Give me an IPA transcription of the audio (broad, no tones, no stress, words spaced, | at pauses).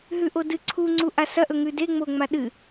ɦʉʔodɨ ǀʰuŋ͡ǀuʔa sɐʔɵŋʉ deŋ͡moŋ͡ma ɗɨ